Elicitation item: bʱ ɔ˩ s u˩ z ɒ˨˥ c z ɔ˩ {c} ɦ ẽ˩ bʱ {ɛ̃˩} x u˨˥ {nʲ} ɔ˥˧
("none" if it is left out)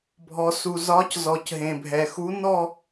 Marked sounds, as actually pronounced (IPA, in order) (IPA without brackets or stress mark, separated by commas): c, ɛ˩, n